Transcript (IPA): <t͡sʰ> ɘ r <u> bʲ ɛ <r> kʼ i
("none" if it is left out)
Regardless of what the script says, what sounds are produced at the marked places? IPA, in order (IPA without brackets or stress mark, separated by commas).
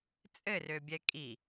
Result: t͡sʼ, ø, none